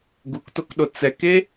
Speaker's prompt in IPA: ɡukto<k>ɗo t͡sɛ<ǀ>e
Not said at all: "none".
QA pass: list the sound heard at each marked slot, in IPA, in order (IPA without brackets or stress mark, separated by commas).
k, k